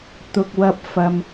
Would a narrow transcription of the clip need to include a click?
no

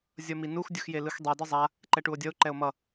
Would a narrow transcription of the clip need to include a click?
yes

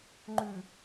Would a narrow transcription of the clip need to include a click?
yes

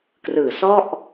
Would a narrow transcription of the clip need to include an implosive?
no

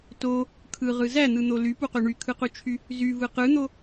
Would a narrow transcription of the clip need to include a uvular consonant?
yes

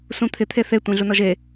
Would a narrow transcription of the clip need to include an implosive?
no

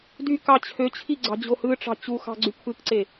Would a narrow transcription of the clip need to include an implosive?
no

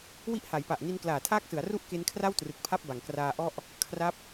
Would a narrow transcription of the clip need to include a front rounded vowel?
no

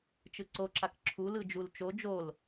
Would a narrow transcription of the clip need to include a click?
yes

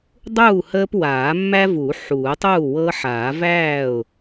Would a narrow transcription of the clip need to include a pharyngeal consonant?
yes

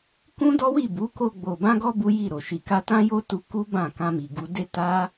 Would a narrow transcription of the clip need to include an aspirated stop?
no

